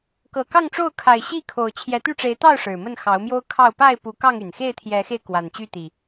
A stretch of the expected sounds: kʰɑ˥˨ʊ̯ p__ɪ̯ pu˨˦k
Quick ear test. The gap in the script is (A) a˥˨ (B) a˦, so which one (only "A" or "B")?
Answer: A